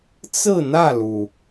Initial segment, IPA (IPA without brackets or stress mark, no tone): t͡s